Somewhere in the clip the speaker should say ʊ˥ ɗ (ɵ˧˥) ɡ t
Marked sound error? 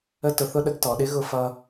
yes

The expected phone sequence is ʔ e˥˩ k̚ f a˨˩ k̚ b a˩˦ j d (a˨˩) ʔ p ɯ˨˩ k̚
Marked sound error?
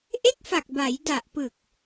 no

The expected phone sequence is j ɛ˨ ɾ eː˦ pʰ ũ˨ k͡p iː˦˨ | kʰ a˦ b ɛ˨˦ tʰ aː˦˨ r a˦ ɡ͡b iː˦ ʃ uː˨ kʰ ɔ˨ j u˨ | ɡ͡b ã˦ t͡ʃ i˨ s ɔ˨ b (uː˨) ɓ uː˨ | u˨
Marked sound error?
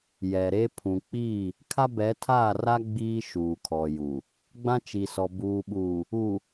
no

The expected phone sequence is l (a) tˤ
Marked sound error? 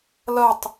yes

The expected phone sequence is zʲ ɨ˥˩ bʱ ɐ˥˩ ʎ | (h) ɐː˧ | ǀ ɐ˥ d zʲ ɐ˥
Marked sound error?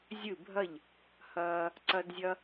no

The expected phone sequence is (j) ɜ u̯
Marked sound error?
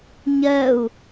yes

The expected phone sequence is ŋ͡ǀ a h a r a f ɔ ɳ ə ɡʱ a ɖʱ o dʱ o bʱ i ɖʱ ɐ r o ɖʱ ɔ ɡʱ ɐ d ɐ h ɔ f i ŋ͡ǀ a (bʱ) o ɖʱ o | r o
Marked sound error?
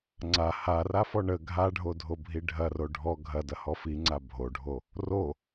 no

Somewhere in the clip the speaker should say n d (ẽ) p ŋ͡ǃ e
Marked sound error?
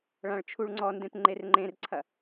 no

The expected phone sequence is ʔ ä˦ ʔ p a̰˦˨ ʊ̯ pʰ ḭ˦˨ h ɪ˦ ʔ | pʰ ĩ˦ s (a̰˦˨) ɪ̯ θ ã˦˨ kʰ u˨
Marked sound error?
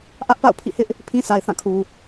yes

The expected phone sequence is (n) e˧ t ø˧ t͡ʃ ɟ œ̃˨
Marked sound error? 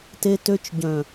yes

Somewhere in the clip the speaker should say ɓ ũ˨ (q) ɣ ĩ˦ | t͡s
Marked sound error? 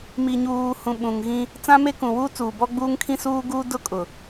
yes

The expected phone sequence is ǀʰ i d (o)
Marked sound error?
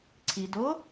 no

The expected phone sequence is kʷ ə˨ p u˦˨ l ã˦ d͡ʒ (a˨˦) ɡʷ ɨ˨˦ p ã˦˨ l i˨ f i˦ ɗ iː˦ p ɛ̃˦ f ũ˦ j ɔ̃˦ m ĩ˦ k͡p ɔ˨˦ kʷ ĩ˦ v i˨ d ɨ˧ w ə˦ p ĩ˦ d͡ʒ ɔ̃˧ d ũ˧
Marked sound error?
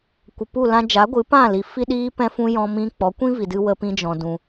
no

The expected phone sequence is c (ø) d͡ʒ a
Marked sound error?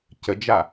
yes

